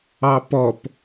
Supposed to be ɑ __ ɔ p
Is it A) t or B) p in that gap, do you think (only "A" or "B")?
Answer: B